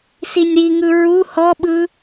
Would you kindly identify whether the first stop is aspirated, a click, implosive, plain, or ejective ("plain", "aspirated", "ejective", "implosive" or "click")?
implosive